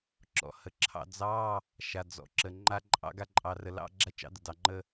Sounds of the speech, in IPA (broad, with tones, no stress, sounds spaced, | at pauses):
ǁ ɔ̰˩ h ə˩ ǁʰ ɑ̰˧ d͡z ɑ˧˥˧ | ʃ a˩ d͡z ɔ̰˩ ǁ ə˩ ŋ͡ǃ a˧ ǃʼ ɑ̰˧ ɡ a˧ ǃʼ ɑ˩ r ə˩ l ɑ̰˧˥˧ ɡ͡ǁ a˧ t͡ʃ ɑ̰˧ d ə˩ d ɑ˩ ŋ͡ǃ ə˧